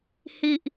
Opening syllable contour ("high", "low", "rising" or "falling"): low